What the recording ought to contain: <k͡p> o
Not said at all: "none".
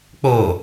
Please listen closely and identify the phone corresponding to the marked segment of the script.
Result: k͡p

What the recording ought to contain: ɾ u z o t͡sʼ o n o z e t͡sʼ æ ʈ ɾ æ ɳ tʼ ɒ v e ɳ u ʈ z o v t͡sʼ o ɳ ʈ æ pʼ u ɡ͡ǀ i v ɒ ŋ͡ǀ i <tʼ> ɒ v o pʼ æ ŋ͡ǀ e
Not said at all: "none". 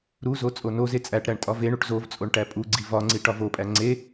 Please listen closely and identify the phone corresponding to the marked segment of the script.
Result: ʈ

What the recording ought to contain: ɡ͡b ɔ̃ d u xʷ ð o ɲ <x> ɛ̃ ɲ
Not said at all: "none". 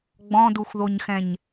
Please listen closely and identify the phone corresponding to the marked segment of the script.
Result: x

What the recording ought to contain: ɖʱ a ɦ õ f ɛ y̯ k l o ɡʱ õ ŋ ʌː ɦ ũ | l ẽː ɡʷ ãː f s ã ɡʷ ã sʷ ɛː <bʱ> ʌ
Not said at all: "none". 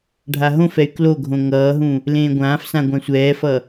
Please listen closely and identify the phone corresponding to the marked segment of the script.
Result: f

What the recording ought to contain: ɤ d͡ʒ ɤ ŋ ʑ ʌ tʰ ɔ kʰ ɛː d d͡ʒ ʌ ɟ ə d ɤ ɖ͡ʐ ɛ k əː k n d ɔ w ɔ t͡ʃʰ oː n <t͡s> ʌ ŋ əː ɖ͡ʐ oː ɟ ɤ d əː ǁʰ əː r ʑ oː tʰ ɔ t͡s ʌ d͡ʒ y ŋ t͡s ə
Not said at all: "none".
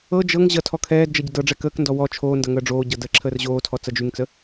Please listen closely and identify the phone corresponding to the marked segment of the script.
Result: d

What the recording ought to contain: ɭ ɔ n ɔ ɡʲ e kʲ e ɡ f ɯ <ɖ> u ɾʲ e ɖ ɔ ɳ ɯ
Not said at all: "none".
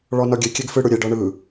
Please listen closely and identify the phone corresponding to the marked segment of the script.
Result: ɽ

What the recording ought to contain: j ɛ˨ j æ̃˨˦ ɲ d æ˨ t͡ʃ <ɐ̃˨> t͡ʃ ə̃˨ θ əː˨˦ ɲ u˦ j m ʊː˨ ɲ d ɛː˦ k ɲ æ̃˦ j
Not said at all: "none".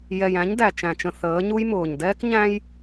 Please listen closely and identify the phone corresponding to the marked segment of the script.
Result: æ̃˨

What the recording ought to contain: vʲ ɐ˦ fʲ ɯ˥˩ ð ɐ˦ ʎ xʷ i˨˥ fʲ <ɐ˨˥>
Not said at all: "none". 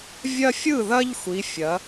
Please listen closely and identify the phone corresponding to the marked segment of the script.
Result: ɐ˨˥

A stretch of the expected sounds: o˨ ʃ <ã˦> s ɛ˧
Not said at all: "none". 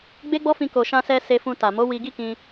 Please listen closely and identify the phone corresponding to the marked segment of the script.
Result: ã˧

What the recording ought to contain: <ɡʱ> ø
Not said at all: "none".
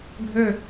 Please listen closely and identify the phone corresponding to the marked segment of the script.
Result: ɡʱ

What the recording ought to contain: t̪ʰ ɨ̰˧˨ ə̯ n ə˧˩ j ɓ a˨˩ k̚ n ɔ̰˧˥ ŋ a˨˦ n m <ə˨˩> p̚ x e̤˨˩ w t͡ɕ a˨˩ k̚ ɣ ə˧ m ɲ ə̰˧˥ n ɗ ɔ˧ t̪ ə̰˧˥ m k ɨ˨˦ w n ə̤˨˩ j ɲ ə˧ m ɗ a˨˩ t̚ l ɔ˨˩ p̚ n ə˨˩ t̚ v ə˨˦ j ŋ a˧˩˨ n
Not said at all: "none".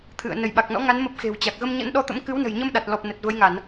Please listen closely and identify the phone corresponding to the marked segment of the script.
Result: ə˦˥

